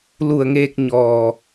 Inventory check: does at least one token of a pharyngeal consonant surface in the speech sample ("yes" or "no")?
no